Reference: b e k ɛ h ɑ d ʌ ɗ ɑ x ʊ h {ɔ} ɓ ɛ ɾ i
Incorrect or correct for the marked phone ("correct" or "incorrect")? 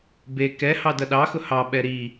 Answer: incorrect